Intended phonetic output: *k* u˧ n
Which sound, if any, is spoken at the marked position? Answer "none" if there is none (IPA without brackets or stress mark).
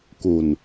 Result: k